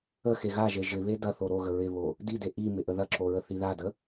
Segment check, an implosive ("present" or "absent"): absent